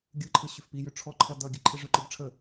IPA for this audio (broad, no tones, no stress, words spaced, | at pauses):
ɡʲɯǃʰɯ ɕʏfpijʏ ʈ͡ʂʰɔǃʰʌ dʌ ɡʲəǃʰeʐʏǃɯb ʈ͡ʂʰə